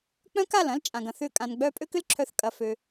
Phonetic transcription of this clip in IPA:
k͡p œ̃˦ k a˦˨ l ɐ̃˦ l t͡ʃʼ ã˨ ɡ ɐ̃˦˨ θ ʏ˦˨ kʼ ã˧ n ɡ͡b œ˦ pʼ ø˦ k ʏ˦ l ǁʰ œ˧ θ kʼ ɐ˧ f ø˧

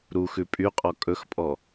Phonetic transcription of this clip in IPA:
ɾ u x ʉ pʼ y qʼ ɔ kʼ ɵ x pʼ ɔ

